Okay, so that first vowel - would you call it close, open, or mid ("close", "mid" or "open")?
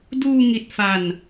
close